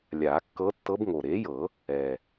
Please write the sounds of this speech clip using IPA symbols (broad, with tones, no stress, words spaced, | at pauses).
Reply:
lʲaː˨˩˦kːɤ˧˥ tːɤ˧˥bŋo˨˩ ɾeː˩˥jɤ˨˩˦ | ɛː˨˩